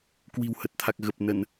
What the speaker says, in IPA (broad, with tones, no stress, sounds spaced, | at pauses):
k w i̤˨˩ w h ə˨˩ t̚ t̪ʰ a˨˩ k̚ ɣ ə˨˩ p̚ n ə˧˩˨ n